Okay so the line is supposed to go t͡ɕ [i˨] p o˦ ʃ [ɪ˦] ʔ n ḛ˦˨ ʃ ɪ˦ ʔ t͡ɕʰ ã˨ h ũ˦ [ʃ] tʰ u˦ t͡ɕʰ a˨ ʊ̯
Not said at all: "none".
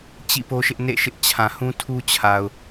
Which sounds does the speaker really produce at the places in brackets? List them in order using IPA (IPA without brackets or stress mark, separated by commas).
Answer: ḭ˦˨, ɪ˦, none